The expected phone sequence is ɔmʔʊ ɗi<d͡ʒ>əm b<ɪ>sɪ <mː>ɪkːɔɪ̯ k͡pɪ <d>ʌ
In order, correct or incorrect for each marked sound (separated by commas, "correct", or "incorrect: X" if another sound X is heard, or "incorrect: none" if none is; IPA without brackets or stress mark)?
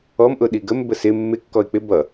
incorrect: ɡ, incorrect: ə, correct, incorrect: b